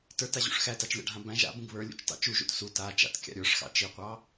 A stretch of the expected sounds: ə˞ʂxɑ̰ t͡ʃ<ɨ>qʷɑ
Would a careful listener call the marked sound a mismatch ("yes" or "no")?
yes